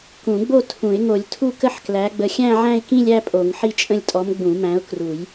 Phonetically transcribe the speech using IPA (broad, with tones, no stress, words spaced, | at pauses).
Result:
kũ˨˩˦ɡ͡bo˥˧ tʰũ˨˩˦ɪ̯ ŋo˨˩˦lʲ tʰu˥˧kə˥˧ħ klæ˨˥ɡ͡bə˨˥ xʲæ̃˥˧ʕæ̃˥˧ɪ̯kĩ˥˧lʲæ˥˧ pʼo˨˩˦ŋħi˥˧t͡ʃʼə̃˥˧lʲtʼɔ˨˥m ɡ͡bũ˨˩˦mæ̃˨˥ʊ̯kru˨˩˦j